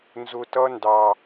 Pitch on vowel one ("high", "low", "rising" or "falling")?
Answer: low